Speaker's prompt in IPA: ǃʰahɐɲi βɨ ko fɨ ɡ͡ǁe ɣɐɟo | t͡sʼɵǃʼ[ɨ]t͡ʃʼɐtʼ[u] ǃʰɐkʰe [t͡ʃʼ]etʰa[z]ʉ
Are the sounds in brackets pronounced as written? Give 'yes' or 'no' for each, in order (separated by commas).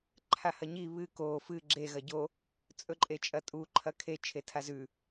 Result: no, yes, no, yes